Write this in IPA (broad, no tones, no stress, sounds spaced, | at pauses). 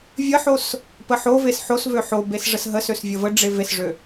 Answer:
vʲ ə ħ o s | p ə ħ o v e s ħ o s v ø ħ o b e s ʐ ə s ɦ ə s ø s vʲ ə v ə ɖ͡ʐ e v e s ʐ ø